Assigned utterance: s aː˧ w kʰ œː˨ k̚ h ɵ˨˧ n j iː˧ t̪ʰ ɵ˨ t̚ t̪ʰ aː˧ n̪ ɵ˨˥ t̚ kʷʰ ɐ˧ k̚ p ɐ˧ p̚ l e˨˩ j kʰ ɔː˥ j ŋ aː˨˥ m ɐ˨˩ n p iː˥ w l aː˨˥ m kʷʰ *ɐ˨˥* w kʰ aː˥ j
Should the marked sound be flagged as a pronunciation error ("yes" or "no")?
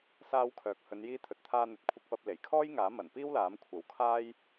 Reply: no